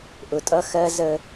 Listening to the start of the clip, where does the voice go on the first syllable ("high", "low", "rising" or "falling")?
low